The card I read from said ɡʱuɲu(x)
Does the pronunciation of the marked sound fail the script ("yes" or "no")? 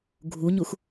no